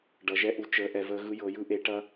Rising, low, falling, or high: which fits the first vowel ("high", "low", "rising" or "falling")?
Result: rising